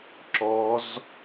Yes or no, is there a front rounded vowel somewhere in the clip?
no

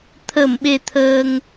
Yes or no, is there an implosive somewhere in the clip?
yes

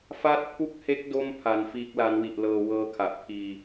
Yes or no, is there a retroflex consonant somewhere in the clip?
no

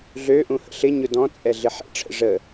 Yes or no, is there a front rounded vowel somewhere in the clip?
yes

